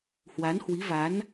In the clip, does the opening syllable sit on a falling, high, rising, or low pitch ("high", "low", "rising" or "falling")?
rising